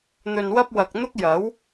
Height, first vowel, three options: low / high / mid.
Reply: mid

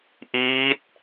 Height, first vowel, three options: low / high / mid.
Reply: high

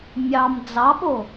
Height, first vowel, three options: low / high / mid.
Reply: low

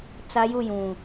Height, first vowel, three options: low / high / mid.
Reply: low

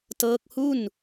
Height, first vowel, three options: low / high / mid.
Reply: mid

